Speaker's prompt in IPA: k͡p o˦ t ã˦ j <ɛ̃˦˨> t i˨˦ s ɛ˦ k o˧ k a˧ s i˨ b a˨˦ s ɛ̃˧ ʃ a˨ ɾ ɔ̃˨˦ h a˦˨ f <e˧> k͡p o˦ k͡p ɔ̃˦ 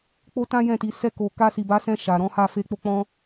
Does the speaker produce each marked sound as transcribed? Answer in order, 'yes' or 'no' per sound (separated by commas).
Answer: yes, yes